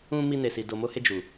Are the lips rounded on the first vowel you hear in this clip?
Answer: yes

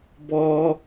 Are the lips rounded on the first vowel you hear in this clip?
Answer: yes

